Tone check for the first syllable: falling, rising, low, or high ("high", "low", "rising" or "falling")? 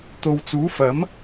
low